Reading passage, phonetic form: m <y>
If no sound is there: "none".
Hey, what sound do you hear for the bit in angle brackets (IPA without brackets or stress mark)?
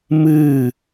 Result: ɨ